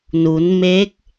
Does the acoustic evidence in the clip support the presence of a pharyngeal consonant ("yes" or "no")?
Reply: no